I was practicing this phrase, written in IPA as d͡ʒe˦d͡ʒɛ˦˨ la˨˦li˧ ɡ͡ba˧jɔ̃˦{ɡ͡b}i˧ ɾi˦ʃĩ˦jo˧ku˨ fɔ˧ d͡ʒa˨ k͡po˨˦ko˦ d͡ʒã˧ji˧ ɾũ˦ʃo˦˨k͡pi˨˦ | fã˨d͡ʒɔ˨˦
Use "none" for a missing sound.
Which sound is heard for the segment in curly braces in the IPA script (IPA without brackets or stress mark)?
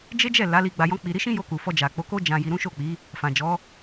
k͡p